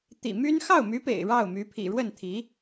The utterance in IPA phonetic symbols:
t̪ ḭ˨˩ m y˥ n x ɑ˥˩ ʊ̯ m y˧˥ p ḛ˨˩ ɪ̯ ɻ ɑ˥˩ ʊ̯ m y˧˥ pʰ ḭ˨˩ ɻ w ə˥˩ n t̪ʰ i˧˥

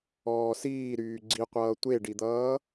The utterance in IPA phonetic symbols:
ɔː s iː ɾ yː ɡ͡ǀ i qʷ ʌː tʷ e ɖ i d̪ ʌː

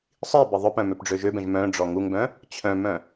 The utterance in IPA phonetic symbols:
sˤ i b ɪ ðˤ ʊ p œ̃ m ø p ɖ͡ʐ ø ʒ ø b ɛ̃ ʒ m œ̃ ɖ͡ʐ ɔ ŋ u ŋ b œ̃ | t͡ɕʰ œ̃ m œ̃

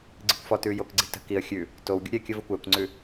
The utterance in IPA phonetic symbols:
ɡ͡ǀ i kʷ f ɔ t ʉː j o k ɡ͡ǀ i̤ t ə̤ k i ə̯ xʲ ʉ | t o w ɡʲ ṵ ɾʲ ɛ kʲ ə v ə kʷ ɛː kʷ ŋ͡ǀ ʉ

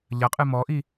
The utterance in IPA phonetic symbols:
ʎ ɐ qʼ ɨ m ɔ ʔ i

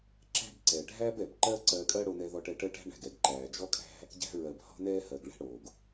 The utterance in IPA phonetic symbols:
ǁ æ̤˦ b ǀ ɛ˨ ɖʱ æ˦ b ɛ˨ b ǃ ɜ˦ ǀ ɜ˧ kʼ ɜ˦ ɽ o˧ n ɛ˧ ð ɔ˧ ʈ ɛ˧ ʈ ɜ˦ ʈ æ̤˦ ɳ æ̤˨ ɡ ɛ˧ ɡ ǃ æː˨ d͡ʒ ɔ˦ kʼ æ̤˦ | ɟ æ̤˧ ɹ ɜ˨ b h ɔ̤˦ n ɛː˦ h ɜ˨ ɡ ɭ ɛ̤˦ ɽ o˨ ɡ

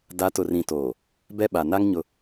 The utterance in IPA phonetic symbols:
d a˨˦ t ʊ˨ r ĩ˨ t oː˨ | b ɛ˦ ɓ a˨ n a˦ ŋ ɲ ʊ˦

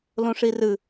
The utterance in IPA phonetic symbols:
l õ ʂ i r ɨ

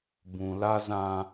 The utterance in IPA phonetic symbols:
b ũ˨ l a˦ z ã˦

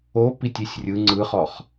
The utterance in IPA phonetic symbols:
o p i tʲ i sʲ rʲ ɯ ŋ͡ǀ ɯ χ ɔ χ

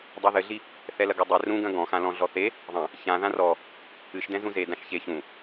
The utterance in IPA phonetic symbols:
dˤ i ð ɘ ɮ i | θ ɛ l ɐ ɡ u dˤ e r ũ ɡ ɐ̃ ɡ ɔ̃ x ã l ɔ̃ ɮ ɔ θ e | ðˤ ɐ̃ | ç ã ð ã r ɔ | ɨ ʃ d ɛ̃ z ũ z e d ã ʃ ç e ç ũ

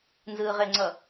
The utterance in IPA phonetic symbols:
n z ɯː ʁ e ŋ͡ǀ ʌ

